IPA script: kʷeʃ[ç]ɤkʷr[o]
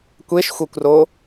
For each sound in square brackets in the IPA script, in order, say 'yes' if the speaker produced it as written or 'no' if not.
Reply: no, yes

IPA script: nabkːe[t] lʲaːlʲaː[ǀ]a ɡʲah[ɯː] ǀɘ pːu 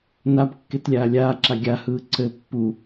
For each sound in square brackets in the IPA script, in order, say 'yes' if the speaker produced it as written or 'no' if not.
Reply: yes, no, yes

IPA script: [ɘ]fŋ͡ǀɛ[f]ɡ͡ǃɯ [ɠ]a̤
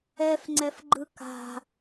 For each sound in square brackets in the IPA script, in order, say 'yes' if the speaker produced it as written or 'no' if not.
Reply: no, yes, no

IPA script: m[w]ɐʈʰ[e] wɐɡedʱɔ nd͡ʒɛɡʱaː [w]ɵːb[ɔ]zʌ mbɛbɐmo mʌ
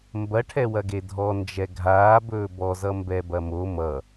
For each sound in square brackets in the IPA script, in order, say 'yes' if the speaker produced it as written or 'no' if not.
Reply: no, no, no, yes

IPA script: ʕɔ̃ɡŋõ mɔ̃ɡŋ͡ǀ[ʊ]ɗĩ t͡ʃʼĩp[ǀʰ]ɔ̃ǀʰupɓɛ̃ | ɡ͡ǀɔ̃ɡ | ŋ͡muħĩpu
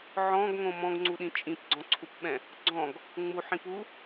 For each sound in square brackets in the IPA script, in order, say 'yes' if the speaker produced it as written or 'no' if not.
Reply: no, no

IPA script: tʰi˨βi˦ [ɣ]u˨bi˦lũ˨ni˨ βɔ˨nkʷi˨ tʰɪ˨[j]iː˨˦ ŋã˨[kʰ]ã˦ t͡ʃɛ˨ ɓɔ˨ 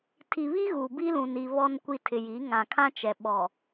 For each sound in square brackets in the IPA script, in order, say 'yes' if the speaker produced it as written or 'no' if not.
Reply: yes, yes, yes

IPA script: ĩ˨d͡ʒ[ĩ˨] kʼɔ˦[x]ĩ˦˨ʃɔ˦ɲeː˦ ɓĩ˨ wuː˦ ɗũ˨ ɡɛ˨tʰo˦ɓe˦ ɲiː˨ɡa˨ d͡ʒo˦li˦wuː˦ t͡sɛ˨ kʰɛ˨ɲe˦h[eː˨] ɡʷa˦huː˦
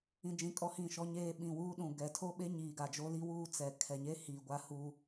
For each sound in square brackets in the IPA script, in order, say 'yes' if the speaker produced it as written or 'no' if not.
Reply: yes, no, no

